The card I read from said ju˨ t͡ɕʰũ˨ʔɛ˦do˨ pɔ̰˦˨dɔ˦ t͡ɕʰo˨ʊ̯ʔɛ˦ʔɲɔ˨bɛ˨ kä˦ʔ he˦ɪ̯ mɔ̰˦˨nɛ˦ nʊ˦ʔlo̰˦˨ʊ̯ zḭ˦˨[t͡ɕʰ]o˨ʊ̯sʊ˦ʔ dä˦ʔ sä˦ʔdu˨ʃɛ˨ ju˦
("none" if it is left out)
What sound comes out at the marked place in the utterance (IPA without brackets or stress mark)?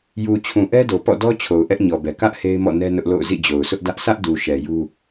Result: d͡ʑ